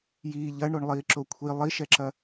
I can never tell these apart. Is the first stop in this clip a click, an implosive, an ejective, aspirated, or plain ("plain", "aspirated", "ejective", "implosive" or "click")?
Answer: click